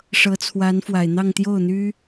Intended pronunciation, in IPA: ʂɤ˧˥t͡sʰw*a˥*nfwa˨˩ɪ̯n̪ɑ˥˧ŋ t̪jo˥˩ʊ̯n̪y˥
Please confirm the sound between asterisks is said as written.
no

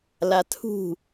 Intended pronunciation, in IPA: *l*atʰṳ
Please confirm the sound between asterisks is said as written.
yes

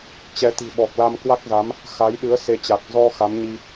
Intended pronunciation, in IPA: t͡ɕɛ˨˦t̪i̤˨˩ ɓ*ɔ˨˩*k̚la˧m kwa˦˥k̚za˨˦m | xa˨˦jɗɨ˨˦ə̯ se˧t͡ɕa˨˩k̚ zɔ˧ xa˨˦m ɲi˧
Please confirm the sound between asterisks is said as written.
yes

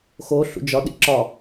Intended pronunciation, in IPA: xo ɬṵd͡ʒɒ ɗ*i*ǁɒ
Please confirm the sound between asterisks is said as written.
no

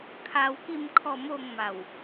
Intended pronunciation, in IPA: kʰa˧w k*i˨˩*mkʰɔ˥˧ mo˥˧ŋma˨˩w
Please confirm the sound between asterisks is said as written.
no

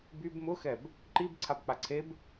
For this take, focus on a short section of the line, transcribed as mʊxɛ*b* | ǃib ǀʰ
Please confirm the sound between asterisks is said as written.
yes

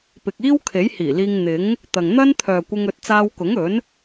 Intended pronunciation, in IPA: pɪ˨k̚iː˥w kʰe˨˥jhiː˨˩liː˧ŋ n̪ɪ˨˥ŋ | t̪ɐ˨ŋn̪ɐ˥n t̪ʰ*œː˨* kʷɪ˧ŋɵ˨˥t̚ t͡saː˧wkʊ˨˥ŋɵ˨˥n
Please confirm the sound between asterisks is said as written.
yes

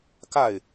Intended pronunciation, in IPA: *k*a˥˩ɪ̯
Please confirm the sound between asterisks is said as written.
yes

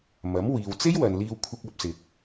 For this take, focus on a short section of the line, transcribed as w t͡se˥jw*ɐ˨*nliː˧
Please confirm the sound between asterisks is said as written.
yes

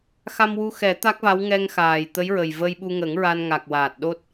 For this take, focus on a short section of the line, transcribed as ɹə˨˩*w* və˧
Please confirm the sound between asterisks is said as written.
no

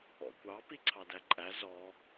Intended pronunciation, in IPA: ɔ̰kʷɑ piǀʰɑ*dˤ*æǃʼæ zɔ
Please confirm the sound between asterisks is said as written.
no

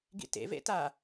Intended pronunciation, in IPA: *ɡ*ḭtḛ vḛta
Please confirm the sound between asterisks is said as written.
yes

